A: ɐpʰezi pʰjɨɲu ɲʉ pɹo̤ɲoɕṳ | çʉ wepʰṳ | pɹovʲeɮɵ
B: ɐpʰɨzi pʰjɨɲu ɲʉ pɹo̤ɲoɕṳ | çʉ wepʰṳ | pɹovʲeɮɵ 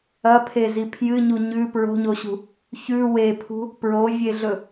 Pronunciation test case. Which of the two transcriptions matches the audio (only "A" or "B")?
A